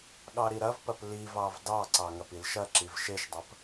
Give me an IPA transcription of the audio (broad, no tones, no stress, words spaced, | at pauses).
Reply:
ɠɑɾiɾɐvpɐp livɑv dɑǀɑ ŋɐpilʃɐǁiv ʃeʃdˤɐp